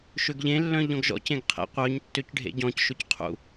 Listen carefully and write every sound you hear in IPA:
ʃ ø ɡ ʎ ẽ lː œ̃ ʎ ɔ̃ ɡ ʒ ɔ̰ c ẽ ɡ qʰ ḛ qʷ œ ɲ tː ø c ɖʱ ḛ ɟ ɔ̃ c ʃ ɵ c qʰ ṵ

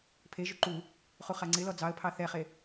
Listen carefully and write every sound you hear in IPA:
pʰ e ʒ u ǃ u | χ u χ a ŋ͡ǀ ɪ l ɔ d͡z ɑ ə̯ pʰ ɑ θ ɛ χ e

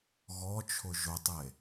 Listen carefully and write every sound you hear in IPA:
ɣ ɔ t͡ʃʰ ʊ ʒ ʊ tˤ e

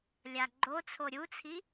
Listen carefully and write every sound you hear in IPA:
lʲ a ɡ͡ǃ o t͡sʰ o ɾʲ u t͡sʰ i

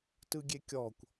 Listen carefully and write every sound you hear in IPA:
t ɯ ɡʲ e kʲ ɔ kʷ

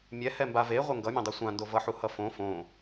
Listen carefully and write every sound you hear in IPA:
mʲ ɛ h ɛ m b a v e ʁʷ ɛ ŋ ɡ ʌ mʲ ã dˤ u sʷ ã n d o v ʌ ħ u h ʌ f õ f õ

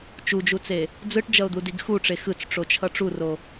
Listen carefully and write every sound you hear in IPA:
t͡ʃ u d͡ʒ u t͡s e | d͡z ɯ ʈ d͡ʒ ʌ ʊ̯ d̪ u d i ɡ x u ʈ͡ʂ e x ɯ t͡s ʈ͡ʂ o t͡ʃʰ ʌ ʈ͡ʂ u r o

